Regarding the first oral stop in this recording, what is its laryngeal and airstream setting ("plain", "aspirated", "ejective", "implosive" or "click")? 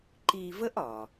click